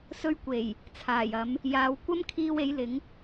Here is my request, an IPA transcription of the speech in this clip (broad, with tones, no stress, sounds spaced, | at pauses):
s ɵ˧ ɥ kʷ e˨˩ j | t͡sʰ aː˨˩ j ɐ˨˧ m | j aː˨ w kʷ ɐ˥ m kʰ iː˧ w e˨˥ j l ɪ˨˥ ŋ